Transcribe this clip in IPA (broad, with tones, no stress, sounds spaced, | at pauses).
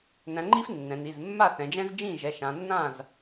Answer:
n æ̃˩˧ ŋ͡ǃ i˦ f nː ɛ̃˩˧ n i˩˧˩ z mː a˥˩ θ ɛ̃˩˧ d͡ʒ ɛ̃˦ z d͡ʒ ĩ˥˩ ʒ ɛ˩˧˩ ʃ ã˩˧ nː ã˥˩ z